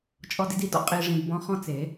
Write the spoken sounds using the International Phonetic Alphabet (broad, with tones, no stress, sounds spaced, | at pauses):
t͡ʃʼ ɔ˧ d i˧ d i˨ d ɔ̰˦ qʼ i˧ ʐ ĩ˧ d b ɔ̃˦ χ ɔ̃˦ t͡s e˨˦